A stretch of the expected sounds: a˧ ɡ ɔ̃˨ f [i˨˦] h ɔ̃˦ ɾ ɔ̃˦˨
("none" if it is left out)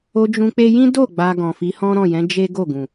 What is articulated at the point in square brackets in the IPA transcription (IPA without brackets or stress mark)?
i˨˦